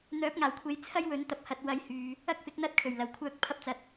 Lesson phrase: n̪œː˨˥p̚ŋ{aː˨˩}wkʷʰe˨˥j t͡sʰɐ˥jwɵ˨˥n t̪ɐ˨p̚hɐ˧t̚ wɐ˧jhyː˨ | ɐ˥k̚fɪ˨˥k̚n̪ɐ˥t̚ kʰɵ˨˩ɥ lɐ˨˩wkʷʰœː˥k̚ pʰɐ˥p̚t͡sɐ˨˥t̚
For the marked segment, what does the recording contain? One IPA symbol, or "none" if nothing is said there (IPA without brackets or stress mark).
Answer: aː˨˩